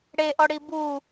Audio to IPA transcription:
ɽeʔɔɽi bu

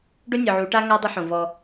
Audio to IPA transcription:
ɖo˦nʲɔ˨ʕu˨˦ʈa˦ ŋa˦ dˤɪ˦ ħõ˨vɔ˦

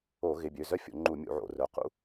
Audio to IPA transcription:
o˧˩˧ɣɪ˩˧˩bʲø˩˧˩zœ˥ fʲo̰˧˩˧ŋ͡ǃu˧˩˧ mʲṵ˧˩˧ʕo̰˧˩˧rœ˩˧˩ qṵ˥

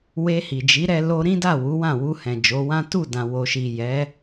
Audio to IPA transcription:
we˧hi˨d͡ʒi˨˦ɾɛ˧ lo˧ɾĩ˦da˦˨ wu˨˦wã˦˨ wu˧hɛ̃˨ d͡ʒo˨˦wã˦ tu˦˨dã˨ wo˨ʃi˨jɛ˨˦

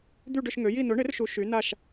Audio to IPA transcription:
d̪y˥˧ɖʏ˥˧ʃŋø˨˥ji˥˧ nʊ˨˥ɳɪ˨˥rʃu˨˥ ʃy˨˥na˥˧ʃ

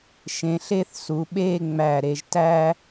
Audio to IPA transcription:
ʃẽ˩˧ɬe˥˧θsu˩˧ɓeː˥˧ ŋ͡mæ˧˩ɾe˧ʒ tæː˥

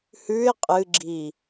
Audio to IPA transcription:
hʉɪ̯ qʼɨɡ͡ǁi

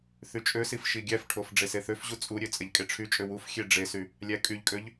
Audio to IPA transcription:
θyt͡ʃʼøsif ʃiɡʲæfʈʰof ɖ͡ʐeseθøfʑu t͡sʼuɾʲø t͡sʼeʎkʼeʈ͡ʂʰyt͡ʃʼø wuf xʲeɖ͡ʐesy | lʲækʼyʎkʼøʎ

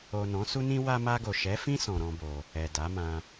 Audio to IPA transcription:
o˨ nɔ̃˨˦su˦nĩ˦ wa˧ma˧ɡo˨ ʃɛ˨˦fĩ˦ sɔ̃˧ɾɔ̃˦bo˧ | ɛ˨da˨˦mã˧

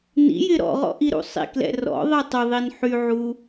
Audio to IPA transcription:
nḭjɪ ɾɔ̰ʁɔ̰ ʔiɾṵsˤḭklɛ̰ rɔ̰ðˤi tˤʏðˤin ħyʕu

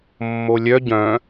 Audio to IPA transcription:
mːolʲœ ɟœ̃

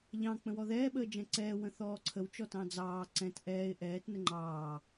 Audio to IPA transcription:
ʎɑ̃ k͡pə̃wɔðɛː ɓəːd͡ʒɛ̃ǀɛː wə̃θɔːǀʰəw t͡ʃɔtɑ̃d͡zɑː ǀɛ̃t ʔɛːɪ̯ ʔɛːt nəŋ͡ǃɑː

